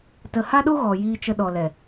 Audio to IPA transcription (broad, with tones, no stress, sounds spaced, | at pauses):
t ə˨ h a˦ ɗ o˦ ɣ ɔ˨ j iː˧ t͡ʃ ə˧ ɗ ɔ˨ l ɛ˨